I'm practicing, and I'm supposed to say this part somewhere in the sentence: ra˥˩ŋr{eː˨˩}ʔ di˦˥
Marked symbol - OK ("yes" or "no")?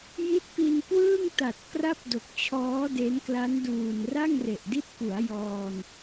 no